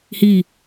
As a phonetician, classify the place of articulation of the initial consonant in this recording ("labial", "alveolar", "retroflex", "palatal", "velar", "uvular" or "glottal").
glottal